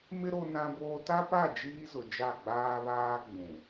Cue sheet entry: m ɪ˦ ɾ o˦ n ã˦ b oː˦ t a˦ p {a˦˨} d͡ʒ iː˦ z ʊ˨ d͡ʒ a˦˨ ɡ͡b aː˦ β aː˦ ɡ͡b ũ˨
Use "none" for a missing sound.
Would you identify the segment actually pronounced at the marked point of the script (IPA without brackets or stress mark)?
a˦˨